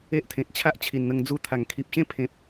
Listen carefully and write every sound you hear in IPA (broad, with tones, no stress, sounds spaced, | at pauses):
e˦ ʔ t̪ʰ ẽ˨ t̚ t͡ɕʰ a˦ ʔ t͡ɕʰ i˨˩ n n̪ ə˧ ŋ d͡z u˧ t̪ʰ a˨˩ ŋ kʰ i˨ p̚ ɕ ẽ˥˧ pʰ ẽ˨ p̚